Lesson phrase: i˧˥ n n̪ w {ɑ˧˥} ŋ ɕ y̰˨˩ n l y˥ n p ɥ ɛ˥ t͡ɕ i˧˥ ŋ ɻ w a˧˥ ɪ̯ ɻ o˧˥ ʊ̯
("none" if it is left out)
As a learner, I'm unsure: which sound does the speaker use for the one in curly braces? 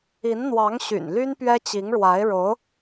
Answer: ɑ˧˥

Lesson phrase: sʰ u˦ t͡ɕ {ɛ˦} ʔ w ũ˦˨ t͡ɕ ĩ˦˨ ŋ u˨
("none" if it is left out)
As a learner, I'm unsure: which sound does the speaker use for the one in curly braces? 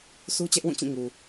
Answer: ɛ˦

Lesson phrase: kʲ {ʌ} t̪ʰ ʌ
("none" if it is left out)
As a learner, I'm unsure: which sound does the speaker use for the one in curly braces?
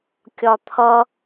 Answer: ɒ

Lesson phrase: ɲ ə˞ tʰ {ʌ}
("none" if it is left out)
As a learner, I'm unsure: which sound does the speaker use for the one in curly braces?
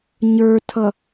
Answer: ʌ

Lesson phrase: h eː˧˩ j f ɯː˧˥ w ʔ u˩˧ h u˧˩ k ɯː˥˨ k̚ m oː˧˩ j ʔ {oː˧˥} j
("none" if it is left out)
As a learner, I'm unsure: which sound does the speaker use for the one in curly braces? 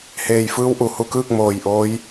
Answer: oː˧˥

